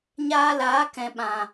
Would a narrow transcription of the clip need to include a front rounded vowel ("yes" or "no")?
no